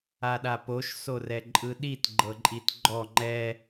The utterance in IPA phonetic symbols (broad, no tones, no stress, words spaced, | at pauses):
aɗapoʃ sorɛǃʼɯɗit ɡ͡ǃɤǃʼitɡ͡ǃɔ ŋ͡ǃɛ